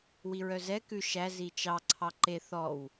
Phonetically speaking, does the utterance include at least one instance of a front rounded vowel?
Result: yes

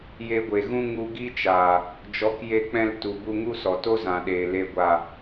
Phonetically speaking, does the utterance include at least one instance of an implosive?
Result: yes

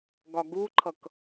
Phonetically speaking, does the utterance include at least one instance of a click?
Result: yes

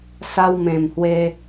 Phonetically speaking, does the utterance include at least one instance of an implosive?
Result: no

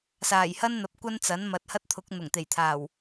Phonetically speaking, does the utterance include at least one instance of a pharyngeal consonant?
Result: no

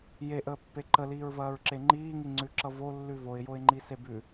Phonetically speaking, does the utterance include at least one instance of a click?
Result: yes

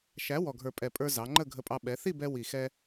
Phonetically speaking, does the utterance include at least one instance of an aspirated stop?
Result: no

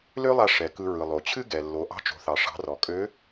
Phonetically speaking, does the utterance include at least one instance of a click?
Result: no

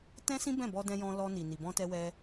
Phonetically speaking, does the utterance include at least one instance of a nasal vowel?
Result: yes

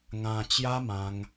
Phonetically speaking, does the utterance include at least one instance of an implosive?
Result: no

